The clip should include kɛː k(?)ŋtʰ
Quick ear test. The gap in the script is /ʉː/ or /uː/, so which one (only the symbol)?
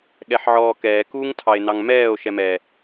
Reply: uː